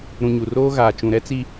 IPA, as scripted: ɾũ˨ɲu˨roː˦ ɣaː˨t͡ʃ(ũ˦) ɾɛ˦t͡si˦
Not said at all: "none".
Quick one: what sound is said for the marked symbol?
ũ˨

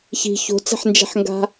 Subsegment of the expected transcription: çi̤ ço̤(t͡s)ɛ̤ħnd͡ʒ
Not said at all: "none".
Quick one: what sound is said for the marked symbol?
t͡s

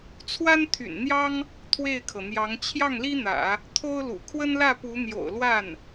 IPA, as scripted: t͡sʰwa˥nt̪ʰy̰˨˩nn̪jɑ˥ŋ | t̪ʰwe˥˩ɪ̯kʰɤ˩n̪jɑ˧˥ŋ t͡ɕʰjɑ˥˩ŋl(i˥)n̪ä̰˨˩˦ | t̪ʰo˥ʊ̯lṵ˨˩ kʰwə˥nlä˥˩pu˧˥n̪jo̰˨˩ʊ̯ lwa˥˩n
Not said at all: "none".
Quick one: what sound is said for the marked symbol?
i˥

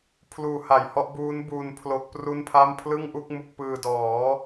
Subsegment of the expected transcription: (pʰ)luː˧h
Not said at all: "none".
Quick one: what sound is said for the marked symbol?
pʰ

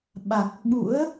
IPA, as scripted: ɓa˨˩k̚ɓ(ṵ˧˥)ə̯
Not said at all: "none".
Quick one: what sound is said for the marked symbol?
ṵ˧˥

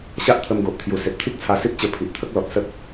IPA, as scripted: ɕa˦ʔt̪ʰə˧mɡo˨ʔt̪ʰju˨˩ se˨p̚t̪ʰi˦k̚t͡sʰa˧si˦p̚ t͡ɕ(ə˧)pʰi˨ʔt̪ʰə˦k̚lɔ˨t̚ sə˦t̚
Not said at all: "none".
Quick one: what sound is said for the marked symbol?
ə˧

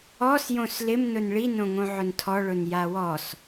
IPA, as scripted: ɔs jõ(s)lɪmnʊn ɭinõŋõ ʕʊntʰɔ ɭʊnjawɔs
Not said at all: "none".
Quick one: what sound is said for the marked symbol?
s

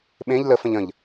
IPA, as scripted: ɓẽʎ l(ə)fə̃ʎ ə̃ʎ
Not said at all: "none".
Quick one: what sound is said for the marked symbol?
ə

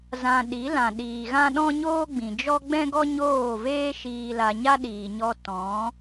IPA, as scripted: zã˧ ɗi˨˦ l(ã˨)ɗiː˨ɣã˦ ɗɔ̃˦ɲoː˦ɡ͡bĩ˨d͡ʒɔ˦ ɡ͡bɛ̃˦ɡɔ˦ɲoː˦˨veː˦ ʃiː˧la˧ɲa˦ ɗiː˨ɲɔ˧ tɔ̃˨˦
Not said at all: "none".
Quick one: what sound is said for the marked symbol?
ã˨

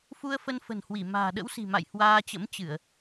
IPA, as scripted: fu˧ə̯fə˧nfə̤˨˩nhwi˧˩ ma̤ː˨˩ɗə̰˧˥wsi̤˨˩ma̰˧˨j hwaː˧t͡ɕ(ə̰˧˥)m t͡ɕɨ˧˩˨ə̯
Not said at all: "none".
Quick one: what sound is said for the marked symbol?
ə̰˧˥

